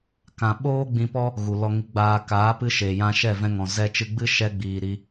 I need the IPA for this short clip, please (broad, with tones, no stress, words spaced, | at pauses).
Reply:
kã˧ ɓoː˦ ɡ͡bĩ˧pɔ˦ | ɣu˨lɔ˧ŋi˧ɡ͡baː˧ kaː˨˦pɨ˧ ʃe˨ jã˧ʃɛ˦˨vɛ̃˧ŋɔ̃˨ zɛ˧t͡ʃɨ˧ɡ͡bɨ˦ ʃɛ˧ɡ͡biː˨ ɾi˧